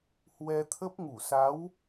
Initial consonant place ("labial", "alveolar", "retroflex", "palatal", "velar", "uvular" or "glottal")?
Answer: glottal